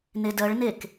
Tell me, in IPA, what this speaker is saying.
n e d ɜ ɭ n e k

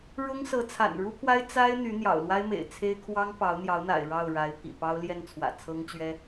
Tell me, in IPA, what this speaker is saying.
ɻ ʊ˥ ŋ s ɤ˧˥ t͡sʰ a̰˨˩ n ɻ u˥ pʰ w a˥ ɪ̯ t͡s a˥ ɪ̯ n̪ y˧˥ n̪ j ɑ̰˨˩ ʊ̯ l w a˥ ɪ̯ m ḛ˨˩ ɪ̯ t͡sʰ e˥ ɪ̯ kʰ w ɑ˥ ŋ p ɑ˧˥ ʊ̯ n̪ j ɑ˧˥ ʊ̯ n̪ a̰˨˩ ɪ̯ ɻ ɑ˥˩ ʊ̯ ɻ a˧˥ ɪ̯ pʰ ḭ˨˩ p ɑ˥ ʊ̯ l j ɛ˥˩ n t͡sʰ w ä̰˨˩ t͡sʰ ɤ˥ ŋ t͡ɕ ɥ ɛ˥

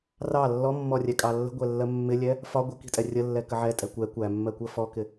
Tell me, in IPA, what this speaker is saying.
r ɑ lː ɔ mː ɔ rʲ ɛ kʼ ɑ lː ə̤ ɡʷ ɛ lː ɜ mː ɪ lʲ ɛ | f ɒ ɡʷ ə k i̤ tʼ ɛ rʲ ə lː ɛ k ə ʕ ɛ tʼ ɛ kʷ ɛ kʷ æ mː ɜ kʷ ɜ f ɔ k ɪ

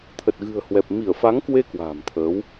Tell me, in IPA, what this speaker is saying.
t̪ʰ ə˨˩ t̚ ɣ ɨ̤˨˩ ə̯ h w ɛ˨˩ p̚ m i˧˩ ə̯ f a˨˦ ŋ k w e˧ k w a̤ː˨˩ m t̪ʰ əː˨˦ w

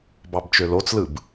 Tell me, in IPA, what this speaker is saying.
b ɑ b t͡ʃ ø l o t͡s l ɯ b

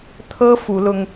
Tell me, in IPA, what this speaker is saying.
t̪ʰ ɤ˥ f u˧˥ l ʊ˥ ŋ

